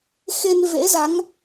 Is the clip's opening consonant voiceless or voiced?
voiceless